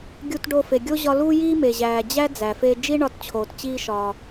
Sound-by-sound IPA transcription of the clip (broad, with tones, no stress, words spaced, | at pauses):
ɡʲu˧tɖo˧fe˩ ɡʲo˥ʑɒ˧lu˥ jiː˥me˩ʑæː˩d͡ʑæ˥ d͡zæ˩fe˧ d͡ʒi˥ɳɒ˧tt͡ɕʰoː˩t t͡ɕiː˧ʃɒː˩